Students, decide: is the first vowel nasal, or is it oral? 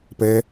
oral